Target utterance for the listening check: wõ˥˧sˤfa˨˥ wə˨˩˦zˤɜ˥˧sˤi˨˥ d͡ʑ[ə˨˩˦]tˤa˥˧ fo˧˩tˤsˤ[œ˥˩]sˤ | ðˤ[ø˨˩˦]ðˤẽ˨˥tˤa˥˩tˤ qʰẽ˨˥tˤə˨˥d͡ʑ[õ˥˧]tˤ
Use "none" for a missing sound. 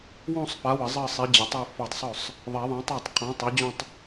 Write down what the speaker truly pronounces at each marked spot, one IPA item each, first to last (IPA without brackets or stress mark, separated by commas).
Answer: ə˨˩˦, œ˥˩, e˨˩˦, õ˥˧